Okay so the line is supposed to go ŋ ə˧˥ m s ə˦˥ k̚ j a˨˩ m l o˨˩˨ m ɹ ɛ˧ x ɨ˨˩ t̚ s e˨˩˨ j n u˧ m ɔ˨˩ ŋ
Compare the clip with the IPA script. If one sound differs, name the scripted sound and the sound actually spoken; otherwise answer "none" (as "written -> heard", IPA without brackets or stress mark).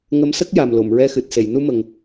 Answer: ɔ˨˩ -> ə˨˩